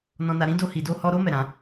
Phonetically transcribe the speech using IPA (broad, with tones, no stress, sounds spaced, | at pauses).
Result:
n ɔ̃˦ n a˦ ɾ ĩ˦ d o˦ h i˧ d o˦ h ɔ˦ ɾ o˦ m ɛ˦˨ ɾ ã˨˦